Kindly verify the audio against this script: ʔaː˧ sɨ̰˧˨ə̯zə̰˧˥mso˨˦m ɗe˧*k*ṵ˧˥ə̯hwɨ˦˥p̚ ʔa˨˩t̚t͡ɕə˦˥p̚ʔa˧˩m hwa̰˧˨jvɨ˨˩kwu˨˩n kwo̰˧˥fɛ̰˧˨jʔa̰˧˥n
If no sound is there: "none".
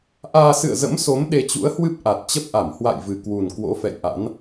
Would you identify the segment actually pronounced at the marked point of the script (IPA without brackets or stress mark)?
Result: t͡ɕ